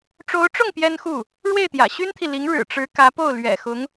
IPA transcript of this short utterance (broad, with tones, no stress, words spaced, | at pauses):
ʈ͡ʂo˧˥ʊ̯ʈ͡ʂʊ˥˩ŋ pjɛ˥nxu˥˩ | ɻwe˥˩ɪ̯t̪jä̰˨˩ ɕy˥nt̪ʰi˨li˧˥ŋ ɻɻ̩˨˩ʈ͡ʂɻ̩˧˥ kä˧˥po˥˩ʊ̯ lɥɛ̰˨˩ xʊ˧˥ŋ